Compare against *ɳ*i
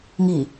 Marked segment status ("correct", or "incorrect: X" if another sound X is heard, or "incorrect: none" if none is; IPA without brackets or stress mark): incorrect: ŋ